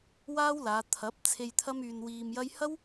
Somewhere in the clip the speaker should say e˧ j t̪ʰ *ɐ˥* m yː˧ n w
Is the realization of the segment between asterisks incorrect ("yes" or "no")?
no